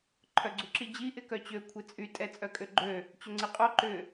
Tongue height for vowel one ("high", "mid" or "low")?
mid